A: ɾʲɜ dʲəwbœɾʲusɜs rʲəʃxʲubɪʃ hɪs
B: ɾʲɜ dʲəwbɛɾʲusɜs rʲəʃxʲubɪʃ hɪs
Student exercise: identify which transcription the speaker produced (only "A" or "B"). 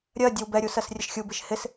B